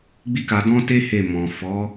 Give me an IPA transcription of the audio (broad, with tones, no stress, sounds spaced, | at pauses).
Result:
ɡ͡b i˦ k a˧ d ɔ̃˦ t e˦ h e˦˨ m ɔ̃˨ f ɔ˨˦